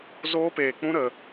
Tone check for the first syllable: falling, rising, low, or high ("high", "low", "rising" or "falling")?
high